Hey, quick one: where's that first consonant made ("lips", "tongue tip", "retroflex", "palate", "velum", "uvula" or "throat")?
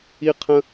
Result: uvula